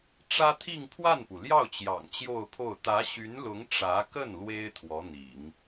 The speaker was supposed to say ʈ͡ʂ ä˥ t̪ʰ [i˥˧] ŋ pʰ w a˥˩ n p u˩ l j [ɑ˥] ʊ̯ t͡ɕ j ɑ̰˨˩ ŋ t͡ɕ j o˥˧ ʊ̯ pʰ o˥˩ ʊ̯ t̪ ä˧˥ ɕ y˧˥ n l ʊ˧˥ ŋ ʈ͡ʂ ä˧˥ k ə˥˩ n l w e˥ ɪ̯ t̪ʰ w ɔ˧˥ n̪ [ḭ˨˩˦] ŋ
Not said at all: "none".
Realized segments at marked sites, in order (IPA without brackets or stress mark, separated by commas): i˥˧, ɑ˥˩, ḭ˨˩˦